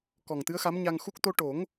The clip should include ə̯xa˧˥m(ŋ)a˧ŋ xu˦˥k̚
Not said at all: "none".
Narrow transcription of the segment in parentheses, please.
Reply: ɲ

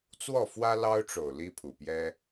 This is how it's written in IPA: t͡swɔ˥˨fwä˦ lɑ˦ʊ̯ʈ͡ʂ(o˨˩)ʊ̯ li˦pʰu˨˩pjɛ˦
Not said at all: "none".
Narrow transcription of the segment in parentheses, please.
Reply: o˨˩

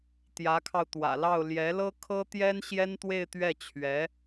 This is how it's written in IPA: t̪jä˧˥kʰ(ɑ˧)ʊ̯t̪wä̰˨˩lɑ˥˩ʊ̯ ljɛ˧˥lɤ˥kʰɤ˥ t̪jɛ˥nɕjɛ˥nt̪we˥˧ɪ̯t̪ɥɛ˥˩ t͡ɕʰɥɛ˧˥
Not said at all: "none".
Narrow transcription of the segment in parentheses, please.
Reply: ɑ˧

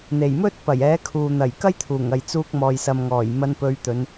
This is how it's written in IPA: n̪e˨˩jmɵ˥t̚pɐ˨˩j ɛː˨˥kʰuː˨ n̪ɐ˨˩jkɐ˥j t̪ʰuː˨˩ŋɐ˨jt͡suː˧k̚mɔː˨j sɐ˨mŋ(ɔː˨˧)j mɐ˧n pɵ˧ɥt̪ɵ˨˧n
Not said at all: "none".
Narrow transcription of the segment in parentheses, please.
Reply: ɔː˨˩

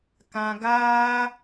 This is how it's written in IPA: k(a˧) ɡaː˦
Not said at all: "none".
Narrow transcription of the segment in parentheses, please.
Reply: ã˧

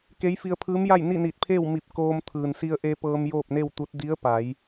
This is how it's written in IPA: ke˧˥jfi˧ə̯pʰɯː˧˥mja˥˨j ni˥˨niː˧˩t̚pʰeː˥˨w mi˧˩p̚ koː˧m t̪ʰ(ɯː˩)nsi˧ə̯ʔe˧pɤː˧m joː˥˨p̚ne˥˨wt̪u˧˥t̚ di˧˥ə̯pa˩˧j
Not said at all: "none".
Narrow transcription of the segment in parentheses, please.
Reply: ɯː˩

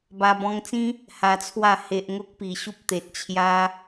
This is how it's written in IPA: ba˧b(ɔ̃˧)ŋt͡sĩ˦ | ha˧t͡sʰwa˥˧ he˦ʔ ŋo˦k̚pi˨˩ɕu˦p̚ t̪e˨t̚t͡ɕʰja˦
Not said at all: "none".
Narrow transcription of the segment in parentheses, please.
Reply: ɔ̃˧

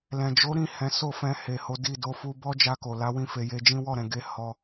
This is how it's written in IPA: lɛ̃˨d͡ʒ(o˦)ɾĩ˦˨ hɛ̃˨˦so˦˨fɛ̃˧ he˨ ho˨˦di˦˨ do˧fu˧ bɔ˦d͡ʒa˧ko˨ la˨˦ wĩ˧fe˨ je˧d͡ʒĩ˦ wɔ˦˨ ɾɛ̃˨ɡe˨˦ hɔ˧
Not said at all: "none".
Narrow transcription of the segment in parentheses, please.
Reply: o˨˦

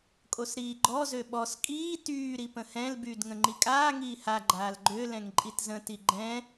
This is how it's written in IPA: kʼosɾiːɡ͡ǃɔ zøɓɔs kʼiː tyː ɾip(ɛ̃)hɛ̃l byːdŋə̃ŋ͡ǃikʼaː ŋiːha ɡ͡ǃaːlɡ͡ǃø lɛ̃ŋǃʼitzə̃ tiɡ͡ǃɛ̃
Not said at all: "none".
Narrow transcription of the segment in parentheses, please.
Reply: ə̃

